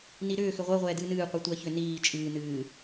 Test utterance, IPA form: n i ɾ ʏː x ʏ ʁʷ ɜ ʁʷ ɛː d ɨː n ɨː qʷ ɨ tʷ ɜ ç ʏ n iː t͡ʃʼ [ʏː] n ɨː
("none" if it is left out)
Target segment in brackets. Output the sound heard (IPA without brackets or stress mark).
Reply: ɨː